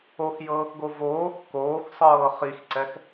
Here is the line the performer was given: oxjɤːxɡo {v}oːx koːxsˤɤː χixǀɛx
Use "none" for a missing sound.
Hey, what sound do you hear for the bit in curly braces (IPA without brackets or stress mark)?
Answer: v